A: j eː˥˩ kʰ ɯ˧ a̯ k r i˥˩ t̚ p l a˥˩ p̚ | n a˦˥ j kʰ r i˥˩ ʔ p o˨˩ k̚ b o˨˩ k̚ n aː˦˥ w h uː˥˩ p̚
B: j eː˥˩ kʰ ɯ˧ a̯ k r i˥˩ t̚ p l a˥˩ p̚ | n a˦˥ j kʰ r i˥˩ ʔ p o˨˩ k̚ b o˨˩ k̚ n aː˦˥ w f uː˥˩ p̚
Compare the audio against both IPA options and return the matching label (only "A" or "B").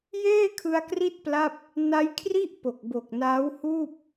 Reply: A